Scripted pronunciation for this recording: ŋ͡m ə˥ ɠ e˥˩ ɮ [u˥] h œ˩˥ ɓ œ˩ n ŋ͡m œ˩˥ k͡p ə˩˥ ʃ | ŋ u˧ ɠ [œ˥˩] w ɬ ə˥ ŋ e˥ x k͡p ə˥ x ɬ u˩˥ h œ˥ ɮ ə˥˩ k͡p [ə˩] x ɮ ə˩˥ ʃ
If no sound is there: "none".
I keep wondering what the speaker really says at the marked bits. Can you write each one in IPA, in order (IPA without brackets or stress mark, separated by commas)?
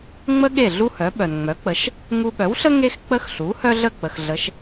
u˥, œ˩˥, ə˩